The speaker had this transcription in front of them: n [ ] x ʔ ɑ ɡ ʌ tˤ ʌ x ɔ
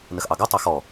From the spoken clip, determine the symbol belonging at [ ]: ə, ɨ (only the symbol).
ə